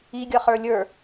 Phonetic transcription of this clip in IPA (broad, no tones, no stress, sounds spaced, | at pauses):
i ɡʲ ʌ χ ə˞ lʲ ə˞